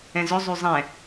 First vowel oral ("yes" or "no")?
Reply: no